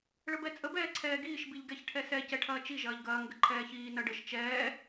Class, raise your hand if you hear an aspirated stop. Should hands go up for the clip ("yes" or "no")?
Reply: yes